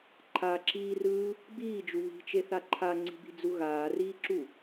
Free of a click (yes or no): no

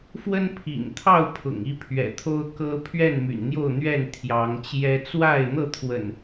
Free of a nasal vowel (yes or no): yes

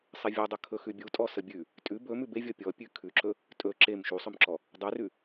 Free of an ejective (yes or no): no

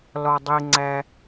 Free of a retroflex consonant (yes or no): yes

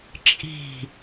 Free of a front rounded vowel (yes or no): yes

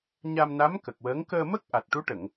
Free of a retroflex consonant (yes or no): no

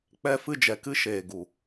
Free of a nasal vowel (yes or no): yes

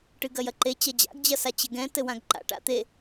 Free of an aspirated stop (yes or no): yes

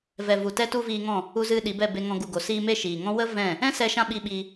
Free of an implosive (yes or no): no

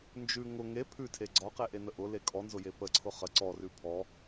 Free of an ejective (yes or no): no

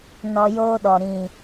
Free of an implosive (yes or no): no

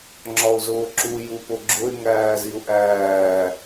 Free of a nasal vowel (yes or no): yes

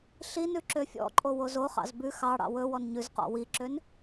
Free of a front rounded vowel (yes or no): no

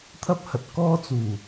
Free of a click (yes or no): yes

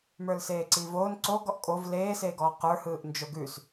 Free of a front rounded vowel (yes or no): yes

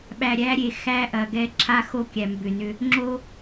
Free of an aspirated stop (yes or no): no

